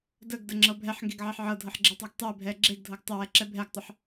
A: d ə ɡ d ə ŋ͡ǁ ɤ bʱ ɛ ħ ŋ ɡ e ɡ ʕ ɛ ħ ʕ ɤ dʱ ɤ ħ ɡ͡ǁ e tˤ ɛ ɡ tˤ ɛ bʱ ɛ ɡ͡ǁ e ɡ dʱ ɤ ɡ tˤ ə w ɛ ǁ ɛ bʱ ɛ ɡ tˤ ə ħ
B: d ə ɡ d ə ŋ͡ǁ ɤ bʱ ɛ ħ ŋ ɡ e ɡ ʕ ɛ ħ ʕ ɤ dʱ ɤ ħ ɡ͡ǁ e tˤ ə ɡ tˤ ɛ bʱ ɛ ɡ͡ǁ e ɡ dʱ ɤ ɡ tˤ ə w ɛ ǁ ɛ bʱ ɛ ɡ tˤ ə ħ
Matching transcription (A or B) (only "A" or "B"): A